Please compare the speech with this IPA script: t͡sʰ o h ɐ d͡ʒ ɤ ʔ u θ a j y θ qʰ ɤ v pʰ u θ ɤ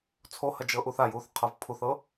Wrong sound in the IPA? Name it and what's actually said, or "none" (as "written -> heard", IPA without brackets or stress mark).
y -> u